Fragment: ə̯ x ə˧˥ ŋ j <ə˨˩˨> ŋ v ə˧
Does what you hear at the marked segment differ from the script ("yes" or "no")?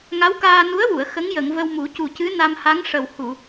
no